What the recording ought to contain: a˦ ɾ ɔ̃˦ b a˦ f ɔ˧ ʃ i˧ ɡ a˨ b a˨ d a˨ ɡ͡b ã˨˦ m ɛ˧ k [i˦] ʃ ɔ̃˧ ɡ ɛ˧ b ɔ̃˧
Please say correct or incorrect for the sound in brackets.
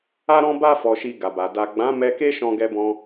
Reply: incorrect